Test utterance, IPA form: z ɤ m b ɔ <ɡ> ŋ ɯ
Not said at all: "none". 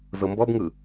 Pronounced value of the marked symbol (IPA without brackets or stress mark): b